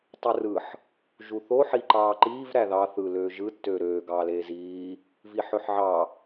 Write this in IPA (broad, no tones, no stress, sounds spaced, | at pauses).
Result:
tˤ ɯ r ɯ ħ | ʒ u θ o ħ i ǃ ɑː ǃ iː v ɾ æ ð ɑ θ ɯ l øː ʒ ɯ tː øː ɾ øː ɡ ɑː l eː z iː | v i ħ ø ħ ʕ ɑ